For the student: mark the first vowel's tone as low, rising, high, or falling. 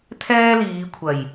high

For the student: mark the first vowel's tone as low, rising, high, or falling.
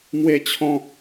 high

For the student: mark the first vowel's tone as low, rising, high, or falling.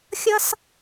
high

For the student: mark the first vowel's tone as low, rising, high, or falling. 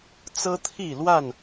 high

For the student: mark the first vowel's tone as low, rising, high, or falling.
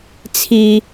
high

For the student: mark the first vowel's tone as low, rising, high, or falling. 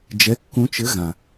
rising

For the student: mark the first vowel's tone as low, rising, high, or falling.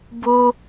high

